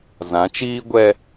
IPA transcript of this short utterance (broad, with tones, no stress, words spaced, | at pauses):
zã˨˦t͡ʃiː˦ɡʷɛ˦